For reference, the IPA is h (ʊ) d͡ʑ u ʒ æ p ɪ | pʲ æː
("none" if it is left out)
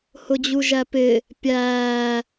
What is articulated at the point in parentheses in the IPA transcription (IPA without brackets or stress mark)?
ʊ